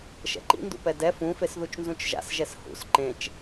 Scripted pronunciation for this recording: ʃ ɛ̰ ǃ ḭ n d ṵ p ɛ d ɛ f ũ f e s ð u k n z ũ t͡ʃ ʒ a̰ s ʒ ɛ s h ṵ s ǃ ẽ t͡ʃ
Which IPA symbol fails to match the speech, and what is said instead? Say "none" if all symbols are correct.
k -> t͡ʃ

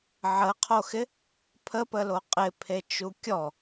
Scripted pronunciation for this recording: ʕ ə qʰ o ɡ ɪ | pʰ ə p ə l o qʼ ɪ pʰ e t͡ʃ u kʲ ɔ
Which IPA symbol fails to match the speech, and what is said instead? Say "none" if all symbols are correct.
ɡ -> x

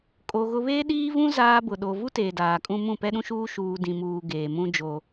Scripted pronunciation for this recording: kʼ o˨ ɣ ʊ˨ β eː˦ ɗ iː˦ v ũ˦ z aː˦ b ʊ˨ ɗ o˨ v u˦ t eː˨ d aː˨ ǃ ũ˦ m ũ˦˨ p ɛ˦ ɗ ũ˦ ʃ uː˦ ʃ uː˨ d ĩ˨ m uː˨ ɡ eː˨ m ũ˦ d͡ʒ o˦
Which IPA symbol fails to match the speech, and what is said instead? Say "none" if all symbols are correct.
ǃ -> kʼ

